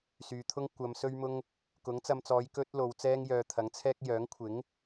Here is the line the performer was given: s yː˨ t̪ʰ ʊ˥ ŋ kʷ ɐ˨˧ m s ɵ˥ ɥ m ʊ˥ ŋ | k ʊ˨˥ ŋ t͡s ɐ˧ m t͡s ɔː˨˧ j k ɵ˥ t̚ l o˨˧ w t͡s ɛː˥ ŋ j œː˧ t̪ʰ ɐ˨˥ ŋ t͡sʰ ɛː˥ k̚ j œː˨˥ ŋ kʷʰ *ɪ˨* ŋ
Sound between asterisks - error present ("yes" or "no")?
yes